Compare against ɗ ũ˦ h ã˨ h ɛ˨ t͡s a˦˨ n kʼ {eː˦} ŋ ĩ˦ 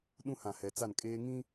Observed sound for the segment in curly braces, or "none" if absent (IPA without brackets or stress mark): eː˦